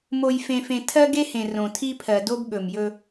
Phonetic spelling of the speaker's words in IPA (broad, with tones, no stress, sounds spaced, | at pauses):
m o˨ j f ẽ˨ f ẽ˨ tʰ ɜ˦ ɡ e˦ h ẽ˨ r õ˨ tʰ i˦ pʰ ɜ˨ d o˦ b ɠ ɵ˨ m j ɵ˦